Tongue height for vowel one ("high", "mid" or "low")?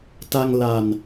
low